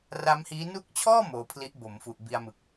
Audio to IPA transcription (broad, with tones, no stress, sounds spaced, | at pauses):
r a˦˥ m h iː˦˥ n u˦˥ k̚ t͡ɕʰ ɔː˥˩ m oː˧ pʰ l i˦˥ ʔ b o˩˦ m f u˨˩ ʔ b i˧ a̯ m ɯ˨˩ k̚